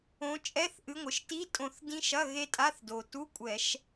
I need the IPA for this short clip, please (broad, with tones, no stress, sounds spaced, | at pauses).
õ˨˦ t͡ʃʼ ɛ˧˥˧ θ ʔ ɨ˨˦ ŋʷ ɨ˩ ʃ t i˧˥˧ tʼ õ˧˩˧ θ d ĩ˦˥ ʃ ɐ˧˥˧ ɣ e˦˥ tʼ a˧˥˧ θ d o˩ t u˧˥˧ kʷʼ ɛ˧˩˧ ʃ